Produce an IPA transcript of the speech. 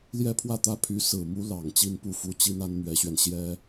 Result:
ljɛ˥pʰwä˥˩t̪ä˥ pʰy˧˥sɹ̩˨˩mu˧˥ lɑ˨˩ŋ t͡ɕi˥npu˥˩fu˧˥t͡ɕi˥n a˥nn̪ɥɛ˧˥ɕɥɛ˧n ɕjɛ˥

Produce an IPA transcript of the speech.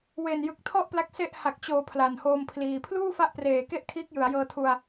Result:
we˨˩njɯ˨˩k̚ tʰɔ˥˩ʔpla˦˥k̚ se˦˥ʔha˨˩k̚t͡ɕoː˩˦ pʰla˨˩nhoː˧mpʰliː˨˩ pʰluː˥˩fa˦˥ʔpreː˨˩ke˦˥ʔ kʰiː˦˥k̚jɯ˩˦a̯jɤː˧tʰu˧a̯

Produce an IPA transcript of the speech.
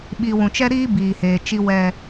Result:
ɓi˨wũ˨ t͡ʃɛ˦ɾiː˦ biː˨heː˨ t͡ʃi˦ wɛ˦

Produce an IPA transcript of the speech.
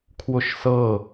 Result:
kʰwʊʃsɤ

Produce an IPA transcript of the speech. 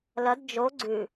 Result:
lɐd d͡ʒo ɡ͡ǀʉ

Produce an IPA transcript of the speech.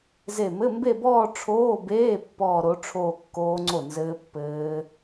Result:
ze˧˩mɘ˧˥˧mbe˥˧bɔː˥˧ ʈ͡ʂʰoː˧˥˧beː˧˥˧ pːɔː˥˧ɾo˦˥ʈ͡ʂʰoː˥˧ kːoː˦˥ŋ͡ǀo˥˩nzɘː˦˥ pːɘː˦˥

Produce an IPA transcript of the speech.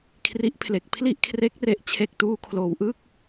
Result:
kʰri˦˥ʔpʰle˨˩k̚ pʰli˥˩ʔkʰre˦˥k̚re˨˩ʔ t͡ɕʰe˨˩k̚tuː˧kʰloː˩˦wʔɯ˥˩k̚

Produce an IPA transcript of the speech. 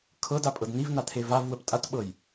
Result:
kʰɤdapʼɤd nivnat̪ʰe vavwəp tʼatɓɤj

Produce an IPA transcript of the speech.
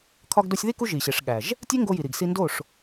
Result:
kʰɒ˧ɡdo˧sʲði˦ ku˦ʒi˨ɕe˨ʂɠæ˨ʒ | tʲe˦ŋɡo˧ji˨ɾi˨ɡ si˧ndo˦˨ʂ

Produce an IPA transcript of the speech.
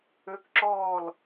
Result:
ø˦˥kǁɔː˥˨l

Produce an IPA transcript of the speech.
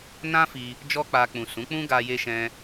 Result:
nã˦fi˧ | d͡ʒɔ˦k͡pa˧ k͡pũ˨sũ˨˦k͡pũ˦ɡa˧ je˦ʃɛ̃˦

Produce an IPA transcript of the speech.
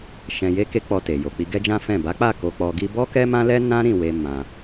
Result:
ʃɛ̃˧je˦ke˦ k͡pɔ˧te˨ jo˨k͡pi˧ɡɛ˦d͡ʒã˦ fɛ̃˦˨ ba˨˦k͡pa˦˨ ko˧k͡pɔ˧ ɡi˧bɔ˦ kɛ˦mã˦lɛ˦ nã˦ɾĩ˦˨ we˧ mã˧

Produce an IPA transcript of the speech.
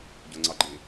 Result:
ɟʊŋ͡ǀɑɡ͡ǃi

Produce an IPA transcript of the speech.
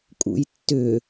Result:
kʼṵjtːʏ

